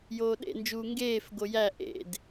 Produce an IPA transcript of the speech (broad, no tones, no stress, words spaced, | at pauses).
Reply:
joːɗḛnd͡ʒuː ŋɡeːf ɡojæ ʔḛd